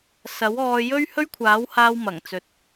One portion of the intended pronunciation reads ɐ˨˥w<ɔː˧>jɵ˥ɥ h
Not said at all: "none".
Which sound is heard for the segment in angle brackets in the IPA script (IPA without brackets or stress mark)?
ɔː˧